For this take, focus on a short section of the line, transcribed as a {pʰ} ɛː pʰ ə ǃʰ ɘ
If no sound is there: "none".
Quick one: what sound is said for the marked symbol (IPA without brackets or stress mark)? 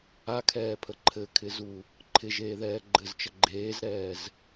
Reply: kʰ